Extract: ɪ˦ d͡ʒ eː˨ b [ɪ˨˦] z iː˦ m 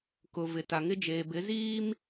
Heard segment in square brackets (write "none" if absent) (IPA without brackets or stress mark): ɪ˨˦